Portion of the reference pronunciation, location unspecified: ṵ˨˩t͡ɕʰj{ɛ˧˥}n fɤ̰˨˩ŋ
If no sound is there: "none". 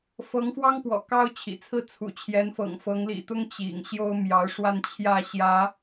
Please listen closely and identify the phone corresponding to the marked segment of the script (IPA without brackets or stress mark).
ɛ˧˥